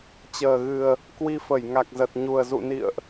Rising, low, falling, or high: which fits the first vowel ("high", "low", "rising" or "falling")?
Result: low